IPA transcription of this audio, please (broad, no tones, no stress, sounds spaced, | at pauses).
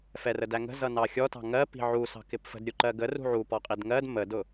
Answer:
f ɛ r ə d æ ŋ ə̤ z ʌ n ɑ xʲ ɔ t ɑ̤ ŋ ɜ p i̤ ʕ u s ɑ̤ k ɪ p f ə̤ d ɾʲ u ǃ ɜ ɡ ə r ṳ ʕ u p ɔ qʼ i d ŋ ɜ d m ə d ʊ